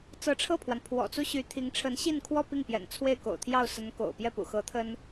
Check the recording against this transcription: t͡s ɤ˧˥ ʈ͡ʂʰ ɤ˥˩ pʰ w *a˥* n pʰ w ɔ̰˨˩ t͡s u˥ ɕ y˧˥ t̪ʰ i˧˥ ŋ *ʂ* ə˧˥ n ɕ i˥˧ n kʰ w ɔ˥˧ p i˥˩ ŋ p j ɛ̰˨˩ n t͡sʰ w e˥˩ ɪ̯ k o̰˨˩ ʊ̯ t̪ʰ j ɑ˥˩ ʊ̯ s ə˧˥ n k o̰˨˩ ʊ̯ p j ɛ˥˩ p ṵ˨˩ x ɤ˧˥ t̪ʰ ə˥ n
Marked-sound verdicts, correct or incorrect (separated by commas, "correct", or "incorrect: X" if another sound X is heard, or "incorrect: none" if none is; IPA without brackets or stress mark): incorrect: a˩, incorrect: ʈ͡ʂʰ